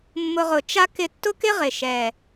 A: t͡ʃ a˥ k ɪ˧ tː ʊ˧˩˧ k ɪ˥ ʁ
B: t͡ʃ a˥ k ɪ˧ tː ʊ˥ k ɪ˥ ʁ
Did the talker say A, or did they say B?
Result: B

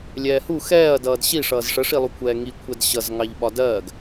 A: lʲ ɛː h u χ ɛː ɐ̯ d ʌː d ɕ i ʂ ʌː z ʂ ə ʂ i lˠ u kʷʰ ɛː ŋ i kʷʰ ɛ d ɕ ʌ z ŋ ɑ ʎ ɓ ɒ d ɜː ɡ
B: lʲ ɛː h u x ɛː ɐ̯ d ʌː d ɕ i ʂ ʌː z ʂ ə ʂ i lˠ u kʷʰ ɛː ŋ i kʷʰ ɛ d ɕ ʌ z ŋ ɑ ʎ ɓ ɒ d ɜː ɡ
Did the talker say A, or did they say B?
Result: B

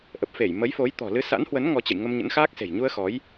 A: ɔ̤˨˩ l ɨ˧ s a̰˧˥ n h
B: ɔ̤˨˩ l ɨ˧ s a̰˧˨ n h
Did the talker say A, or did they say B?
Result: A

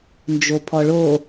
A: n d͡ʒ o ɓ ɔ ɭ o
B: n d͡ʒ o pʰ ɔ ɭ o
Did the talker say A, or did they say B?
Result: B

